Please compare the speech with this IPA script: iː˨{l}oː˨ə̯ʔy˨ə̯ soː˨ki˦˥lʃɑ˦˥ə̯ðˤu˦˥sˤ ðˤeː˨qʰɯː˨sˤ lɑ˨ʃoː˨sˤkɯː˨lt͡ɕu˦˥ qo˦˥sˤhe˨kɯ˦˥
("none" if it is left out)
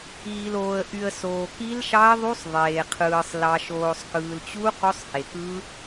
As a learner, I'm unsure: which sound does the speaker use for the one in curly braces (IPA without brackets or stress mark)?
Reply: l